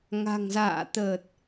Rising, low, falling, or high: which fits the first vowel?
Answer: low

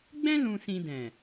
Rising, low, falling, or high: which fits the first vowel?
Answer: high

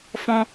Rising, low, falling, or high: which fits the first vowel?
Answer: high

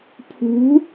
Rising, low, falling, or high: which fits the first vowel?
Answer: rising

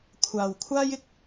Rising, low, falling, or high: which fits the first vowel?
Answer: low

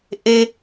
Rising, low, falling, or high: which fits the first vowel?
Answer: low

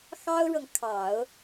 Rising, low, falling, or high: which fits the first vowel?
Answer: high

